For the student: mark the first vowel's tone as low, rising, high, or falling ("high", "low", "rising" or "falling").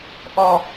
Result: low